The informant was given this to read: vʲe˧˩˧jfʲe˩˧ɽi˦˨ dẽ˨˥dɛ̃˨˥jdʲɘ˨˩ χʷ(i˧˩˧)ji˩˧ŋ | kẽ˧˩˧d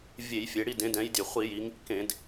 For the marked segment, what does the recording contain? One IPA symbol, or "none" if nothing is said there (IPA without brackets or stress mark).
i˧˩˧